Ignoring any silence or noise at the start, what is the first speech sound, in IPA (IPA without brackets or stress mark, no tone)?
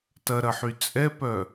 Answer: t